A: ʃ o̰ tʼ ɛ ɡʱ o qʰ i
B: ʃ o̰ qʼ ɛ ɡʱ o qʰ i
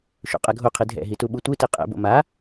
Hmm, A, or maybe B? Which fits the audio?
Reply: B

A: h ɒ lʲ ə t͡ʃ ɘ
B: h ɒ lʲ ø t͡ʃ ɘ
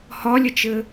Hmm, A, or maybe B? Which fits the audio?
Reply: A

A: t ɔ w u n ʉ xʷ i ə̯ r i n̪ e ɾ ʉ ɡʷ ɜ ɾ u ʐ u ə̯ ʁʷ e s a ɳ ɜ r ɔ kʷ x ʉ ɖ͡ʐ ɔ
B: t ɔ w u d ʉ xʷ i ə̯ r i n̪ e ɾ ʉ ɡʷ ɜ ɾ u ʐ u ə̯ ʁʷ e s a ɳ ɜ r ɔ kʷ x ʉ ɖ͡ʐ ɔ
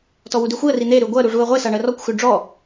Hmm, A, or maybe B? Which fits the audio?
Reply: B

